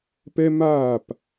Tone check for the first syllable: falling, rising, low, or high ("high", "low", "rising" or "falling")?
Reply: high